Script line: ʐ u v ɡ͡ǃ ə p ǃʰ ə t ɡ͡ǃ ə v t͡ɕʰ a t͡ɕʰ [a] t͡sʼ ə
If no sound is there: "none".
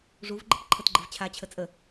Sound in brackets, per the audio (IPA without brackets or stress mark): ə